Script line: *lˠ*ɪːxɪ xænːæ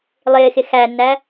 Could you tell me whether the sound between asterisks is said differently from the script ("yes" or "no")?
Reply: no